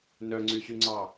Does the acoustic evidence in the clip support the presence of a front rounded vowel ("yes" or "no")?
yes